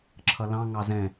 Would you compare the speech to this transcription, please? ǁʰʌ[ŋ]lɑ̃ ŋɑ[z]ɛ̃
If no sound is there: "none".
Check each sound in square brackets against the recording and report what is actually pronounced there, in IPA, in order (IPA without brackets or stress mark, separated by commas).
none, z